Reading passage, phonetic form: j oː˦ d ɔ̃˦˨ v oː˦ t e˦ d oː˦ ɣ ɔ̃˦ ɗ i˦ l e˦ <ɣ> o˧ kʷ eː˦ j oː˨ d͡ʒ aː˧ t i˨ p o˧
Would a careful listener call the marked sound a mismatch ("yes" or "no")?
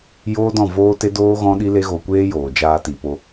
no